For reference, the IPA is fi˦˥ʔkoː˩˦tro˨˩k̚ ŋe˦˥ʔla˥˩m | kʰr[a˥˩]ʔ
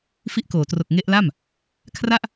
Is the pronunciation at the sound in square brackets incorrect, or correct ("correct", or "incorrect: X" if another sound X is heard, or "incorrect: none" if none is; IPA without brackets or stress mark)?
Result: correct